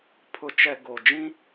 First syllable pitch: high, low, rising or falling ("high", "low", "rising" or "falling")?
low